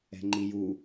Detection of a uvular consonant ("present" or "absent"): absent